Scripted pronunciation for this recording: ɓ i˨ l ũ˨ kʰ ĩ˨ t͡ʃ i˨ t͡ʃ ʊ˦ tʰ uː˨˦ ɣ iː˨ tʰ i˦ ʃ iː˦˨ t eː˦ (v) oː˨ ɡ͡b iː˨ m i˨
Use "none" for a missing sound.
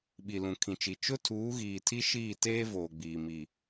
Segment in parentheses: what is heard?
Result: v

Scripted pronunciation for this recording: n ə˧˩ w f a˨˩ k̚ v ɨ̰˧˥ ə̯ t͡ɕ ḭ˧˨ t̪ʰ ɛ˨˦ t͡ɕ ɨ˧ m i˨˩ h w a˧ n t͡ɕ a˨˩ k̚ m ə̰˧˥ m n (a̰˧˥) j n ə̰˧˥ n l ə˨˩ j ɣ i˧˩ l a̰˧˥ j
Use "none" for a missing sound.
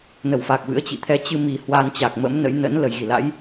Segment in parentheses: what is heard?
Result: ə̰˧˥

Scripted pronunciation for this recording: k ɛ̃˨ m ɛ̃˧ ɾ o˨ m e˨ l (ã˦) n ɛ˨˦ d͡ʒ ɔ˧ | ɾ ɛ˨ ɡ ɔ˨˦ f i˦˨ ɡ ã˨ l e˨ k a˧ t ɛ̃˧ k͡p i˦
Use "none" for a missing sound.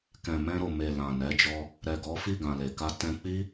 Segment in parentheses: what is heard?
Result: ã˨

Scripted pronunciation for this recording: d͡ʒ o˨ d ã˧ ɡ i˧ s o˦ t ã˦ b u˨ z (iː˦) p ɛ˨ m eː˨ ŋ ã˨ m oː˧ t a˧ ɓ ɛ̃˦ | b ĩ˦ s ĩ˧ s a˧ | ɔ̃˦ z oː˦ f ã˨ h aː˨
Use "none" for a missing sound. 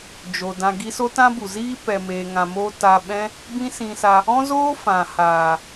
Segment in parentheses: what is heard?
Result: iː˦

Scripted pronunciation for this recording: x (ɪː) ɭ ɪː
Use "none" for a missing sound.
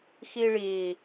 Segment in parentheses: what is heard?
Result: ɪː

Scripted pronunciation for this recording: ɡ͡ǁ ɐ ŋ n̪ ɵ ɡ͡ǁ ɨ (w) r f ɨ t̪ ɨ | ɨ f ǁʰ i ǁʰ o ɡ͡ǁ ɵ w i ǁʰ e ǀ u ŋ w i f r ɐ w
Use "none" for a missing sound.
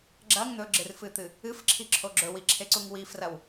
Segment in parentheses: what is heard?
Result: none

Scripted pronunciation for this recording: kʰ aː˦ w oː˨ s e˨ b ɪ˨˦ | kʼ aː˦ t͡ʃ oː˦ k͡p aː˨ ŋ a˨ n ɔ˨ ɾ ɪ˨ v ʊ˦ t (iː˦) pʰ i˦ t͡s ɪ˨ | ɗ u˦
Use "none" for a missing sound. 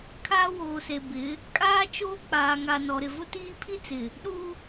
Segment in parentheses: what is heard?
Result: iː˦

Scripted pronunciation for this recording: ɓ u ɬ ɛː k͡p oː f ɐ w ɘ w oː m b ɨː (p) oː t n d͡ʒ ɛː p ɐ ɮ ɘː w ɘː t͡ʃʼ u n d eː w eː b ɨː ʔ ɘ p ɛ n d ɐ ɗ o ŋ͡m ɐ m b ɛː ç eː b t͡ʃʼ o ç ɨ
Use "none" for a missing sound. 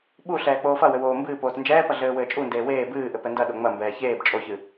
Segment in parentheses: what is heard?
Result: p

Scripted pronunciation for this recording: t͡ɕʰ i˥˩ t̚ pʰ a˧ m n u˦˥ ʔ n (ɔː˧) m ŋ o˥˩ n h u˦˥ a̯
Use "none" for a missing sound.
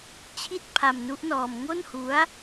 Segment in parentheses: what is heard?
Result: ɔː˧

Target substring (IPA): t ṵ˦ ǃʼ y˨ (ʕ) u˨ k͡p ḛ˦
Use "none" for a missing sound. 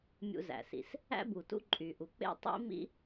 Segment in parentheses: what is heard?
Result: ʔ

